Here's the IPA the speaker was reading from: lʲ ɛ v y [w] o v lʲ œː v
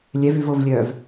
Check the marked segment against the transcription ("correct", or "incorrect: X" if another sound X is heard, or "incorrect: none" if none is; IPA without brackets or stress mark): incorrect: v